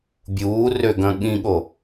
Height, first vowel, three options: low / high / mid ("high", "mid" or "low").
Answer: high